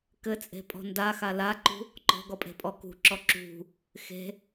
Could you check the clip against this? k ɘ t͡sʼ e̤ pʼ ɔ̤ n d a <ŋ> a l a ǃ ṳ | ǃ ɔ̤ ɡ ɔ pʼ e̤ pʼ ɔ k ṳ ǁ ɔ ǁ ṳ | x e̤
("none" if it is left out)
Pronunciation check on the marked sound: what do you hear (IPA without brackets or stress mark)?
x